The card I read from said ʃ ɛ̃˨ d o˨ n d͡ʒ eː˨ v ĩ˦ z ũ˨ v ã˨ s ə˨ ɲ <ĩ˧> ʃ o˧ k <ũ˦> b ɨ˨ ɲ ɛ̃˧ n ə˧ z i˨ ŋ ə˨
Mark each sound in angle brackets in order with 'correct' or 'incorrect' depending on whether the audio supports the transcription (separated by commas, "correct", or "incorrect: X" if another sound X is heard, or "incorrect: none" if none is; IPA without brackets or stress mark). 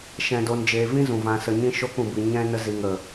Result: correct, incorrect: ũ˨